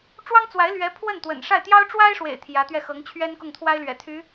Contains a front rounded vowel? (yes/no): yes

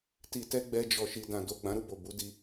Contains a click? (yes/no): no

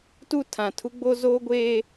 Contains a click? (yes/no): no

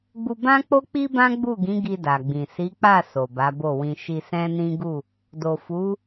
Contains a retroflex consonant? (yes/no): no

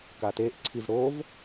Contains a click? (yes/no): yes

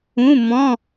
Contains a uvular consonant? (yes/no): no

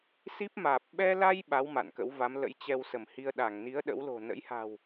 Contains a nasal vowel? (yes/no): no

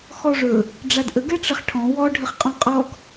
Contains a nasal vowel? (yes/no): yes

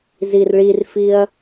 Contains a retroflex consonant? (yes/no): yes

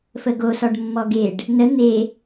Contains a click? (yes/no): no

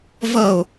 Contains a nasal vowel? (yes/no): no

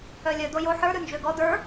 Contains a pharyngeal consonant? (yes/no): yes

